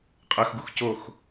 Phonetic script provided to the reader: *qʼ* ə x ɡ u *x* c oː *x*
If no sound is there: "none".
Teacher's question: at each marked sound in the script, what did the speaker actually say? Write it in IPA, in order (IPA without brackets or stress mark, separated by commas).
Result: qʼ, x, x